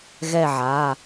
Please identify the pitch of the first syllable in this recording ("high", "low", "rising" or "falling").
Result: falling